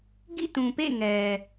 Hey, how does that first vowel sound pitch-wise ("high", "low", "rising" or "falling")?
falling